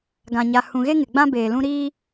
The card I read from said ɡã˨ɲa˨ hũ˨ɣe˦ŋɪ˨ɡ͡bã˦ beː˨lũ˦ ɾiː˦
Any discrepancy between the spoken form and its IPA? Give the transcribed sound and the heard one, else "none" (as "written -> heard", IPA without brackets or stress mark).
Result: none